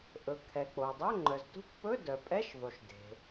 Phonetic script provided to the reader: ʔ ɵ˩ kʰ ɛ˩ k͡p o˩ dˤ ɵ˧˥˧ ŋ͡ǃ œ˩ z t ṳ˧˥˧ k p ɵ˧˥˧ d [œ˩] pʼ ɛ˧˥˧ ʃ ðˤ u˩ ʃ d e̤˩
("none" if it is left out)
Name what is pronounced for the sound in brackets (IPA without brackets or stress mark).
œ˩